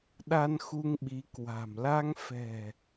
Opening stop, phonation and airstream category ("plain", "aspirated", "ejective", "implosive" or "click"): implosive